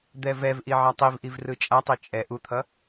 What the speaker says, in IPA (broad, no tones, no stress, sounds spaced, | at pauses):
d̪ ɛ v ɛ v ʔ i ʕ a tˤ i v ʔ i v r ɯ t͡ʃʼ a tˤ i t͡ʃʼ ɛ ʔ u t̪ʰ ʌ